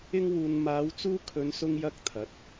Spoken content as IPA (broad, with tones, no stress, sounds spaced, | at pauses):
ɪ˧ ŋ w uː˨ n m aː˨˧ w t͡s uː˧ kʰ ɵ˨˧ n s ʊ˧ ŋ j ɐ˧ k̚ t̪ʰ ɐ˨˥ t̚